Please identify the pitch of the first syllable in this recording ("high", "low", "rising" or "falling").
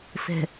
low